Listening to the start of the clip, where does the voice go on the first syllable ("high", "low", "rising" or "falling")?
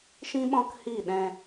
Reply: high